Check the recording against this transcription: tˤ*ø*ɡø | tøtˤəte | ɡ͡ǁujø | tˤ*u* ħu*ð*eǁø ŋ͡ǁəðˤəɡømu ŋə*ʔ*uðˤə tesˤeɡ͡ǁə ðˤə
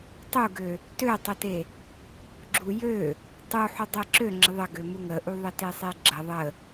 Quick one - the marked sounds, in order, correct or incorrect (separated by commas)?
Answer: incorrect, correct, incorrect, correct